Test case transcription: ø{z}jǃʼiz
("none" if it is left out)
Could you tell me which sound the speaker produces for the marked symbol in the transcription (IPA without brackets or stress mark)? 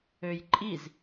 none